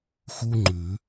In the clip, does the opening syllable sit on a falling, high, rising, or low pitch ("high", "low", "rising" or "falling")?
high